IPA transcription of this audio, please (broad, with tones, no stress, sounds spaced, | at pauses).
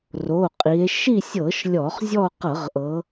r o˩˧˩ qʼ i˩˧ e̯ ʃ i˦˨ sʲ ɤ˧˩˧ ʃ lʲ ɔ˧˩˧ χ zʲ ɔ˦˨ q ɤ˧˩˧ ʁ ʔ ɤ˩˧